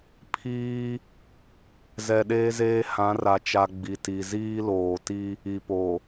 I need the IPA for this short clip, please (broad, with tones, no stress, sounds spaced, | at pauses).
pʰ iː˦ | z ɛ˨ ɗ eː˦ z eː˦ h ã˨˦ r a˨ t͡ʃ a˨ ɡ͡b i˨ t i˨ z iː˦ l oː˨ t i˦ | i˨ p o˨